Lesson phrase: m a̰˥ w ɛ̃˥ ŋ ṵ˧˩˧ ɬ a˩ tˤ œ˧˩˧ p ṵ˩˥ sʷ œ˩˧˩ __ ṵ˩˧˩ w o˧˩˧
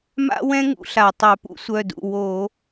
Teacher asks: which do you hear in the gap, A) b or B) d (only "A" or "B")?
B